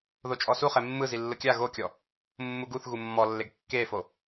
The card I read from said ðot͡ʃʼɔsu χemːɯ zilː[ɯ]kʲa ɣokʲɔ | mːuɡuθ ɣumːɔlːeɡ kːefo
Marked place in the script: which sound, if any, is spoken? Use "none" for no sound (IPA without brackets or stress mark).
ɯ